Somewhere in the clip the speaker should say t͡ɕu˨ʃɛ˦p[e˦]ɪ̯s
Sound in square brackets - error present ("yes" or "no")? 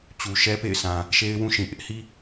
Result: yes